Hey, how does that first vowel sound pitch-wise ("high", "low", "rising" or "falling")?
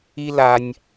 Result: high